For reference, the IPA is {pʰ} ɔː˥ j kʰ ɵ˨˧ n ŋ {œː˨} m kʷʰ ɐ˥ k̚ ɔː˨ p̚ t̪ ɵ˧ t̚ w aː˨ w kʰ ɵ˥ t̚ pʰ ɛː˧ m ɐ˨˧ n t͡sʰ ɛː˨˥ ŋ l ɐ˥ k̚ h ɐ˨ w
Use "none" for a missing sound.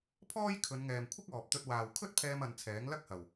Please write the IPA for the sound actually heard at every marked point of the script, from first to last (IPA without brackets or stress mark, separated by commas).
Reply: pʰ, ɛː˨